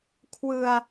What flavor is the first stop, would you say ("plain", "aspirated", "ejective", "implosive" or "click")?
aspirated